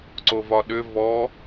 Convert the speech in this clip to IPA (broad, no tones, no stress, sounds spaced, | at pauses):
ǀ o v ɒ ɗ ʏ v ɔ